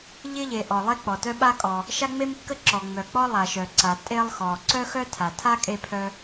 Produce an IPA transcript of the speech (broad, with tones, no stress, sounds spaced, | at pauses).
ʎ ɪ˥ ʎ e˩ ʔ ɔ˩ lˠ e˥ k͡p ɔ˩ t œ˥ ɓ a˥ kʼ ɔ˩ | ʃ a˥ ŋ͡m e˥ m kː ə˥ ǁ ɔ˩ ŋ͡m œ˩ k͡p ɔ˥ lˠ a˩ ʃ œ˩ ǀ a˩ tʼ e˥ lˠ x ɔ˩ ǀ œ˥ x œ˥ tʰ a˩ tʰ a˥ kʼ e˥ pʰ œ˥